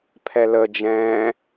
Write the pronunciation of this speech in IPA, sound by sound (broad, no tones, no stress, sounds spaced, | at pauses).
pʰ ɛ l ə d͡ʒ ɛ̃ː